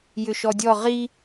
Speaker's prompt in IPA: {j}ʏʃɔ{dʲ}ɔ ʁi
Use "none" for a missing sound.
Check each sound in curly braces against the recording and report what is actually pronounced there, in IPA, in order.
j, dʲ

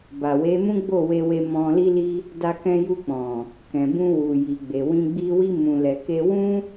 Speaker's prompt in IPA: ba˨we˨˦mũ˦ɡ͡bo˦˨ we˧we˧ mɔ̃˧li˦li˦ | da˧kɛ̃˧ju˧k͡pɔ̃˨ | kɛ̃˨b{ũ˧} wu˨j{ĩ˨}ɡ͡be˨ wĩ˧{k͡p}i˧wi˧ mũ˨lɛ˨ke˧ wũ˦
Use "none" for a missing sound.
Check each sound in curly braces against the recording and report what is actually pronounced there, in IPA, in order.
ũ˧, i˨, ɡ͡b

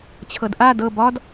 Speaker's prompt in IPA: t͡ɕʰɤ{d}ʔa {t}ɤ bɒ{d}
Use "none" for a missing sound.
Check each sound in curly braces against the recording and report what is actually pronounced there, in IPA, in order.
d, d, d

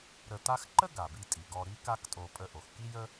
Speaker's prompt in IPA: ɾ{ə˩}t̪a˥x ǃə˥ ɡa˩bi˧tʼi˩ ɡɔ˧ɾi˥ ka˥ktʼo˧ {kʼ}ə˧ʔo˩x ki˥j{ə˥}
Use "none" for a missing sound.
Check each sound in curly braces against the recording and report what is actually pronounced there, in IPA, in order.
ə˧, pʼ, ə˥

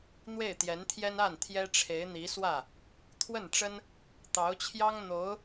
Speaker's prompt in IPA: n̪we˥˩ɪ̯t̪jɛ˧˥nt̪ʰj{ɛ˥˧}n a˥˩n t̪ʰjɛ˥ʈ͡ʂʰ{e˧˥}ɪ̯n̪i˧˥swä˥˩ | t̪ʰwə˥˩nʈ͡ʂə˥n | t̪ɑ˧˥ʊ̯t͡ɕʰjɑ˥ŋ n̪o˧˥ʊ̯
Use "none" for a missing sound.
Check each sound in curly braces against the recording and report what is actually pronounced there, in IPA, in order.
ɛ˥, e˧˥

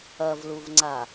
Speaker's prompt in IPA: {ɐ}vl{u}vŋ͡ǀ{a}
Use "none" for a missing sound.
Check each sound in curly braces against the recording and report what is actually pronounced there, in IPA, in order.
ɐ, u, a

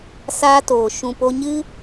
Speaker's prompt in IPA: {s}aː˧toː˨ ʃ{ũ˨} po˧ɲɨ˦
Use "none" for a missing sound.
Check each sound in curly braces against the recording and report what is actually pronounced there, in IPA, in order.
s, ũ˨

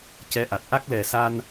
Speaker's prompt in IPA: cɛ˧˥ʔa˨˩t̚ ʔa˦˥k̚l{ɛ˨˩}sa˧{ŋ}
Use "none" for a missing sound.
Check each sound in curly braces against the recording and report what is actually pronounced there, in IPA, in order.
ɛ˨˩, n

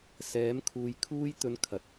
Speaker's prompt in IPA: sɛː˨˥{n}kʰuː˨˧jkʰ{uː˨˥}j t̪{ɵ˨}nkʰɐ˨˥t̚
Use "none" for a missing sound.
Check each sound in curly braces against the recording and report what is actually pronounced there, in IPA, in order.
m, uː˥, ɵ˧

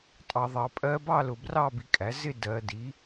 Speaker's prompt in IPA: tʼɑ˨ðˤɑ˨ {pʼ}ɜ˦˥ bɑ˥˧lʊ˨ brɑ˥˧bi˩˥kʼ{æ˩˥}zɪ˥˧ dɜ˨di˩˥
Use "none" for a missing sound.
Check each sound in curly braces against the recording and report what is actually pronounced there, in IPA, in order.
pʼ, æ˩˥

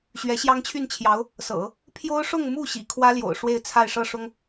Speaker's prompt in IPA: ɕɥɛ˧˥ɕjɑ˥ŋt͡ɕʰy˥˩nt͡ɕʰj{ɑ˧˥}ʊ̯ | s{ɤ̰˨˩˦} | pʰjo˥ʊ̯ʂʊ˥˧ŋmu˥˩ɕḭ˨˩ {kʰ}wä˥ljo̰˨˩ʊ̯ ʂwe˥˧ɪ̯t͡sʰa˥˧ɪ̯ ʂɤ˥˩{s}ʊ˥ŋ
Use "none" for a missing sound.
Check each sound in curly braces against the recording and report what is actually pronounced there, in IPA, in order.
ɑ˧˥, ɤ̰˨˩˦, kʰ, ʂ

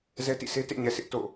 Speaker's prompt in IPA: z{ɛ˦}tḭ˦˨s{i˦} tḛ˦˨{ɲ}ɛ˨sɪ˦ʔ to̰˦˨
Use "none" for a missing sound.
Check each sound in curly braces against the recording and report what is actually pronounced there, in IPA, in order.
ɛ˦, e˦, ɲ

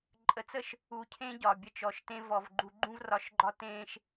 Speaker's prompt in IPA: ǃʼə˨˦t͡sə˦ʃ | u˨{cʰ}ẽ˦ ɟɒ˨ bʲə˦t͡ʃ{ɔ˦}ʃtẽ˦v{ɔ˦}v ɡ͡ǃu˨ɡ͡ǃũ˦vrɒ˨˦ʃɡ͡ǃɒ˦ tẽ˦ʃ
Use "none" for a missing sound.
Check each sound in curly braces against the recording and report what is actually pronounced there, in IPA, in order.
cʰ, ɔ˨, ɔ˨

